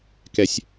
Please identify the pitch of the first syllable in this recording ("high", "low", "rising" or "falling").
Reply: low